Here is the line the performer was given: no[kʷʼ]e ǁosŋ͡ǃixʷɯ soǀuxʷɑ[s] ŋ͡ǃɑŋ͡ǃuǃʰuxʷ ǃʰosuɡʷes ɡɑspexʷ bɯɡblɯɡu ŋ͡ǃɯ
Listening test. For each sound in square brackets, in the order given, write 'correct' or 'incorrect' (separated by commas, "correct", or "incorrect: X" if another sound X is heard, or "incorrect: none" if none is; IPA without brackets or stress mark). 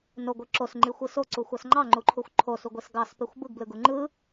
incorrect: ɡʷ, correct